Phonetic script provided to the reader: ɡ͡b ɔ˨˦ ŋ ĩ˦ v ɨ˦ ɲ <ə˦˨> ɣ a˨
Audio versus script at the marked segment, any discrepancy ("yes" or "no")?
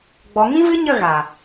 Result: no